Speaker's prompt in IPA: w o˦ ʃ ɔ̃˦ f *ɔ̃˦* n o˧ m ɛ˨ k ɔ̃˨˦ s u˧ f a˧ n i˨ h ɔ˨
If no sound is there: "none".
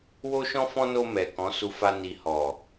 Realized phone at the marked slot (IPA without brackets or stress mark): ɔ̃˦